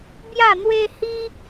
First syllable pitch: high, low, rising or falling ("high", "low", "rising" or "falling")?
falling